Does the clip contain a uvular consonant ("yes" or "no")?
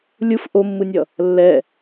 no